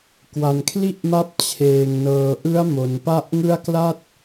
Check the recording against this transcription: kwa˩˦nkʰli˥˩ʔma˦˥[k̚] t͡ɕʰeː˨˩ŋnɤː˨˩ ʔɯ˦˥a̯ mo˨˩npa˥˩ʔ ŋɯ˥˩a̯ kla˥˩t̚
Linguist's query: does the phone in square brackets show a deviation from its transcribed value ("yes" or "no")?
yes